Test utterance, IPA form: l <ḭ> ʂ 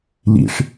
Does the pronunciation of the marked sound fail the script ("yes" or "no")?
no